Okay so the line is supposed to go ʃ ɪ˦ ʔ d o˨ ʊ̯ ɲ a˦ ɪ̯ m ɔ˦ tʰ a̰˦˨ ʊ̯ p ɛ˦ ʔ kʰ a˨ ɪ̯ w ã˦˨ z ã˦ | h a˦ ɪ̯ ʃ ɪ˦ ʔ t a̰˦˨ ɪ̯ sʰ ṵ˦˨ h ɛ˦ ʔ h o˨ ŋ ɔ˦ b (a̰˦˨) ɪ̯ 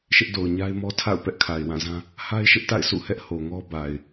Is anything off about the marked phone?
yes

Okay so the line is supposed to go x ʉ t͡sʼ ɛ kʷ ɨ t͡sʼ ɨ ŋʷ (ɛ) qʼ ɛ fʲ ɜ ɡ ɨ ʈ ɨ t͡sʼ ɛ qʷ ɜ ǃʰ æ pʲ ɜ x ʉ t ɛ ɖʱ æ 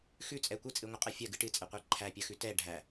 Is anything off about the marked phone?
yes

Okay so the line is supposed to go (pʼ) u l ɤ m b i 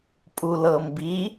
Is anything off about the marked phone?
no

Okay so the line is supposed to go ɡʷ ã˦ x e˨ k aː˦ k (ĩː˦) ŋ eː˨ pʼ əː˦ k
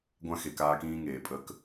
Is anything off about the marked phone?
no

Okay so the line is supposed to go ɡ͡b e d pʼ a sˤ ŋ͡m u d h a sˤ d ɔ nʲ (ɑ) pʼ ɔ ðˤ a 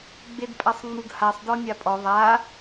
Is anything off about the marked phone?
yes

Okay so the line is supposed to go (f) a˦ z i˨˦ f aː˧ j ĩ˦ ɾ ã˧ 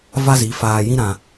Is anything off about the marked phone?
yes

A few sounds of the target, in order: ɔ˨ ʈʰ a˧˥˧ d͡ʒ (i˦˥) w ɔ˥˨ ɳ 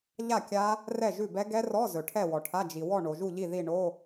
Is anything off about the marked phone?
yes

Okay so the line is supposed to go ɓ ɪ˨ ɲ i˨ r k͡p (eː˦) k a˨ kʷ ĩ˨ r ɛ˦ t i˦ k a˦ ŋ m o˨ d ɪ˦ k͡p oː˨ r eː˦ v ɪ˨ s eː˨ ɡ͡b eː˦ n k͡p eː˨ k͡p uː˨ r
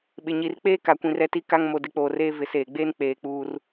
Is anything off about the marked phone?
no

